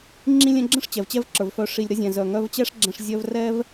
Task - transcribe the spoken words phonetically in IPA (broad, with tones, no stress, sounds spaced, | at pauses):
ŋ͡ǁ ĩ˧ lʲ ɛ̃˧ ɡ͡ǁ ə̃˦˨ ʂ t͡ɕ ɛ˨ v t͡ɕ ɛ˦ v ǁ ə˞˨ v f œ˨ ʂ i˨ lʲ ɾ ə˧ zʲ ɛ̃˨ z œ˨ ŋ œ˧ v t͡ɕ ɛ˦ ʂ ɡ͡ǁ ɛ̃˧ ʂ zʲ œ˧ v r ɛ˦ v